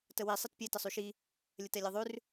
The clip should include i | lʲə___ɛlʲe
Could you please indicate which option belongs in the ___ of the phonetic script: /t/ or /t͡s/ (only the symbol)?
t